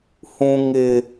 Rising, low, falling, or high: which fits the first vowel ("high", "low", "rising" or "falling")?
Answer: high